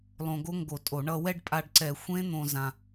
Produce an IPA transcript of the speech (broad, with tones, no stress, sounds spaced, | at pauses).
lˠ õ˧ ɡ o˦˥ ŋ ɡ o˧˩˧ tʼ o˧˩˧ ɳ ʌ˧ w ɛ˥˧ ɖ pʼ a˧ ɖ ǀ ɛ˧˩˧ xʷ ẽ˦˥ n̪ õ˧ z ã˧